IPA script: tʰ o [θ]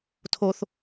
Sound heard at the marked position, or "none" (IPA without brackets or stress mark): θ